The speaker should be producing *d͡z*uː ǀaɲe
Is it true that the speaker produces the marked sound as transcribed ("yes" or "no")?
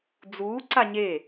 yes